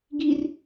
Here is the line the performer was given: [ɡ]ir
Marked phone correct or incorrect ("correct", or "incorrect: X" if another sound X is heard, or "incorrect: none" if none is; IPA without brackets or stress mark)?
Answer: correct